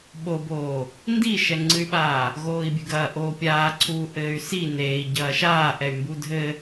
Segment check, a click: present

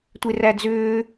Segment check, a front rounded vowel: present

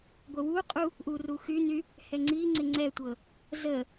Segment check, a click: present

